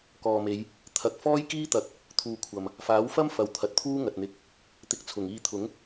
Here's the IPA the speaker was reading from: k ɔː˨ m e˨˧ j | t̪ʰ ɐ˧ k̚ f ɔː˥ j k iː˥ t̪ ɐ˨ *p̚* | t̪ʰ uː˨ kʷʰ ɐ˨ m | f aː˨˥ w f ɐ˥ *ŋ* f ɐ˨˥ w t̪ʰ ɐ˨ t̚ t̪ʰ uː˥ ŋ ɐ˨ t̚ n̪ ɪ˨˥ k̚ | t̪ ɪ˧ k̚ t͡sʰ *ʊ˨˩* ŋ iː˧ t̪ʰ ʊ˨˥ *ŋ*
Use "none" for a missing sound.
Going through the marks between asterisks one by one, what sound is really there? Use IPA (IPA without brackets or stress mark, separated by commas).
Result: k̚, m, ʊ˨˩, ŋ